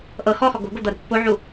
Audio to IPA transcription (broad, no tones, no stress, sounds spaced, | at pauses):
ʔ ɤ x ɔ x ɔ ɡ o̤ ɡ o d̪ ɤ ɾ ṳ pː o ʕ u